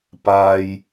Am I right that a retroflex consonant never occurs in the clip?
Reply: yes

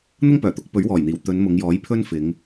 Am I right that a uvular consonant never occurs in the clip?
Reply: yes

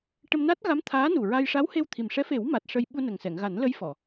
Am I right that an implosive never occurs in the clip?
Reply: no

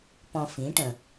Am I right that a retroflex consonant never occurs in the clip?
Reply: no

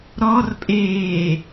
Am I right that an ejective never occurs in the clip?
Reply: no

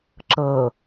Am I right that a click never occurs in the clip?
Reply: no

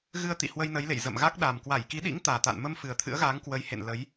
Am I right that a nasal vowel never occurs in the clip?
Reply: yes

